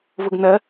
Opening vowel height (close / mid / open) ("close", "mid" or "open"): close